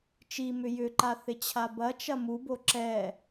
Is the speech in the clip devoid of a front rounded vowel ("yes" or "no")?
no